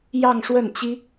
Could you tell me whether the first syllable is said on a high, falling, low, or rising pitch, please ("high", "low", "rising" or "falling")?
falling